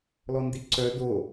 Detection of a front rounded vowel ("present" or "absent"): present